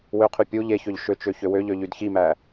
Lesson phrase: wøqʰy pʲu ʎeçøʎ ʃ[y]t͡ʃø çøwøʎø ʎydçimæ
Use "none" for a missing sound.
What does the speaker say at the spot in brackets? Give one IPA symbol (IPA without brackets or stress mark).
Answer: ø